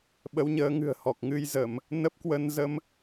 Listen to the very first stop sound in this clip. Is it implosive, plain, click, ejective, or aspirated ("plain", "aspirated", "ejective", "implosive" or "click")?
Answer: implosive